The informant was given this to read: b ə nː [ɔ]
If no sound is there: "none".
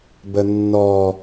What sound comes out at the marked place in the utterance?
ɔ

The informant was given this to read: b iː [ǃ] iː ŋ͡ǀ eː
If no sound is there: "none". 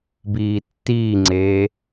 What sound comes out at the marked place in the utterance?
tː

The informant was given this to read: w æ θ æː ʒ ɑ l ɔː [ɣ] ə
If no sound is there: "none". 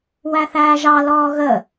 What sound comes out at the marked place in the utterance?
ɣ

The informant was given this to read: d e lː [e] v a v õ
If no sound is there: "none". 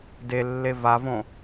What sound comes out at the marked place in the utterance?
e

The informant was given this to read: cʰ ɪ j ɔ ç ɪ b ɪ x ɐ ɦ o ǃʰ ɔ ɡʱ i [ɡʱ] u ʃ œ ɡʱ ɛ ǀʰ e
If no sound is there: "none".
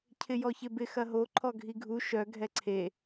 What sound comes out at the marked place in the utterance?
ɡʱ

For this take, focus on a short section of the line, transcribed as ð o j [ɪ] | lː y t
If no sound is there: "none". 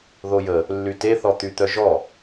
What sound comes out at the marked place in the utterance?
ə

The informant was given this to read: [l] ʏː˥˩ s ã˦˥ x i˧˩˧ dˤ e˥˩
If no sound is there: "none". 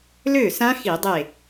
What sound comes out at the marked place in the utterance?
l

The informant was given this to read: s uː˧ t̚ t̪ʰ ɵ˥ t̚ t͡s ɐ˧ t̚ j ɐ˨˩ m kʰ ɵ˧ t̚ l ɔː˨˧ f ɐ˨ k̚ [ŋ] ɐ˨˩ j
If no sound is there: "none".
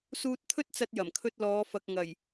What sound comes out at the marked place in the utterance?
ŋ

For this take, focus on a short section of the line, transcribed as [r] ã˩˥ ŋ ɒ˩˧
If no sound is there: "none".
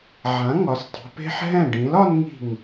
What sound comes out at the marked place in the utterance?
ʕ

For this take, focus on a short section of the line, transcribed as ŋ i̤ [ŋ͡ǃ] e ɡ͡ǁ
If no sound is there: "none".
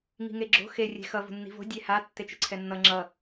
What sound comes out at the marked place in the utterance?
ŋ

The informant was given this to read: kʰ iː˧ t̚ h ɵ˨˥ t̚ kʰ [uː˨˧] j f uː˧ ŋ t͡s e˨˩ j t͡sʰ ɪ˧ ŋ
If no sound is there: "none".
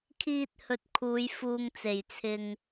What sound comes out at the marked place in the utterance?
uː˨˧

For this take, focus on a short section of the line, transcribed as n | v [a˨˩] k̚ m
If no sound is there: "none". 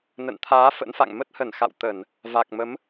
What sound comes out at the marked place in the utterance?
a˨˩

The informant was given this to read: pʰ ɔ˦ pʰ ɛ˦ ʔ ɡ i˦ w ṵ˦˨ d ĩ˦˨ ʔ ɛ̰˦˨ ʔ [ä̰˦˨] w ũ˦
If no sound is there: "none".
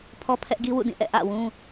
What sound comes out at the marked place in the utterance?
ä̰˦˨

